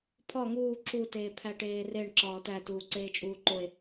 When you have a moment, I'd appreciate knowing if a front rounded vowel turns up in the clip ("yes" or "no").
no